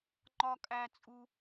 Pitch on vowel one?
high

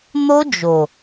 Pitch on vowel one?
high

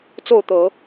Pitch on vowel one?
falling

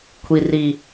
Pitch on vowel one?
low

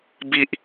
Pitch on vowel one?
low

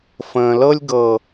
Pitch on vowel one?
low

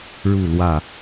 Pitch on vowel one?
falling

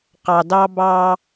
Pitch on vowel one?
low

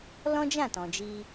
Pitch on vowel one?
high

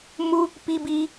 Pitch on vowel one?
high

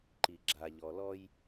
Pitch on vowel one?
low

